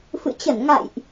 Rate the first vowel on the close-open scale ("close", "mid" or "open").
close